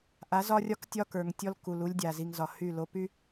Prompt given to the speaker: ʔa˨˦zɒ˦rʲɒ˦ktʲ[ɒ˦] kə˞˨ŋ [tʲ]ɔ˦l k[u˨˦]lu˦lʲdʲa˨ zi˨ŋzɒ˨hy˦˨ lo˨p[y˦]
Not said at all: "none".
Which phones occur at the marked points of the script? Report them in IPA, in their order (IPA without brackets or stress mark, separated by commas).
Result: ɒ˦, tʲ, u˨, y˦